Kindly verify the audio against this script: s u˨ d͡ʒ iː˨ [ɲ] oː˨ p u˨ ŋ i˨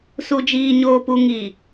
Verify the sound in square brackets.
correct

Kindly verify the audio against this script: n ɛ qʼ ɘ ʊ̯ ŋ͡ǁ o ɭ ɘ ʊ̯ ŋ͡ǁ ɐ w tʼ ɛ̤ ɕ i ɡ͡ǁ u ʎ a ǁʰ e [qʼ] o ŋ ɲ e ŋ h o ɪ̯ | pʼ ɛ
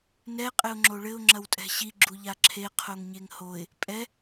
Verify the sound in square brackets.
incorrect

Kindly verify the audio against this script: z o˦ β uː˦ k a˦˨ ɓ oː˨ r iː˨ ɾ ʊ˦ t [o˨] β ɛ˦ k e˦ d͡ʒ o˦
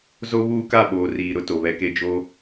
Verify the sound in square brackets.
correct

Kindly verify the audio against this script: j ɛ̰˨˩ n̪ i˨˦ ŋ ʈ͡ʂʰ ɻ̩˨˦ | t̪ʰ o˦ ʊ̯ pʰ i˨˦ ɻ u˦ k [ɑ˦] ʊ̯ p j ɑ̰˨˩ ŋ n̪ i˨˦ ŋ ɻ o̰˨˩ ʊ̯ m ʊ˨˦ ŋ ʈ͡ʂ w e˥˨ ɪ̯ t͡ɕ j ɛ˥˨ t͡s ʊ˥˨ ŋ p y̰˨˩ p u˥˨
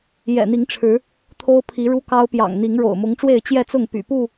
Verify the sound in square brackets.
correct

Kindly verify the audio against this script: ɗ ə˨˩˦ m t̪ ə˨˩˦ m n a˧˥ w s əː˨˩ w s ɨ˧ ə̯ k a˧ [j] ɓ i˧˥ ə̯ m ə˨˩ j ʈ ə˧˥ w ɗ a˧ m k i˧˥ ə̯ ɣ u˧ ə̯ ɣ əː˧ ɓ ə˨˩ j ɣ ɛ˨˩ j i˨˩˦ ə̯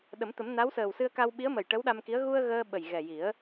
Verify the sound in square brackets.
incorrect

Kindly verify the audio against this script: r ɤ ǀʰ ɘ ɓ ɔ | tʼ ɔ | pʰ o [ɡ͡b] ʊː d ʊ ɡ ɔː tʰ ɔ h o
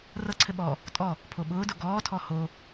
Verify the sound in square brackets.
incorrect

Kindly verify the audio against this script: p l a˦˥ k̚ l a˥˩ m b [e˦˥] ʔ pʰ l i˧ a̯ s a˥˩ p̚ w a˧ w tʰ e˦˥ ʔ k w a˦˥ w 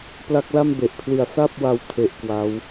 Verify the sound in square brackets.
incorrect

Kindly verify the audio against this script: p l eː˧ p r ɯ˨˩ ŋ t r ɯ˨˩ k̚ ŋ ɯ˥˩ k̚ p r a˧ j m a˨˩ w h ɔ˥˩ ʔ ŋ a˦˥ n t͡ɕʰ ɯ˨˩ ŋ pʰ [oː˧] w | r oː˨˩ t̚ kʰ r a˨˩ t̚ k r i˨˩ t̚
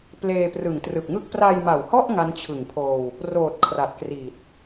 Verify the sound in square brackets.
correct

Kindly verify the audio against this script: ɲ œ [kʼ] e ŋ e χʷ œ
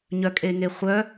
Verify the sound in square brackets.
correct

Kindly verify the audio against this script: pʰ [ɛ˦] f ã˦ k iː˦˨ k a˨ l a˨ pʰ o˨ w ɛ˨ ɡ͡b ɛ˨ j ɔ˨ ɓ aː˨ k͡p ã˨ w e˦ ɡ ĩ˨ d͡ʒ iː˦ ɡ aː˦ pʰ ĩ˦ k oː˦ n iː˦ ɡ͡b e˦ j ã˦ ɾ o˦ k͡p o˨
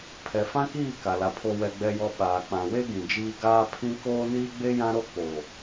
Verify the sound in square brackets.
incorrect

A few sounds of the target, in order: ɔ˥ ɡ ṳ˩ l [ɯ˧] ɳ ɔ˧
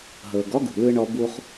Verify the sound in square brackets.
correct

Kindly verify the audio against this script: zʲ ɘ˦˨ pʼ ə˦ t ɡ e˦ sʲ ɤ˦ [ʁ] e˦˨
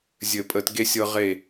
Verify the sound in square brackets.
correct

